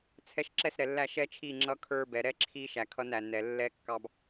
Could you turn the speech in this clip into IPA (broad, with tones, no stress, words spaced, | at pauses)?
t͡sʰɛ˦ʃ ǁɛ˦sɾɛ˨lːæ˦˨ ʃɛ˦t͡ʃʰi˦˨ ŋ͡ǁʌ˦kʰə˞˦ bɛ˨ɾɛ˦ǁʰi˦ʃæ˨ kʰʌ˦næ˨nɛ˨ lːɛ˦kːɑ˦b